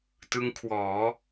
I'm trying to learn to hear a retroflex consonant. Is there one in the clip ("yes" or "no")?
no